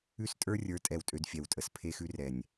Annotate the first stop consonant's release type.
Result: ejective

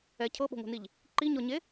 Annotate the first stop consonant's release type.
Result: aspirated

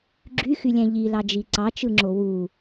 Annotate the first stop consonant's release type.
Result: click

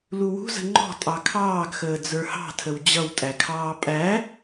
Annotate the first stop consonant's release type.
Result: click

